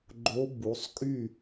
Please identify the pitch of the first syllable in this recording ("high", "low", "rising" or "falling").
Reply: rising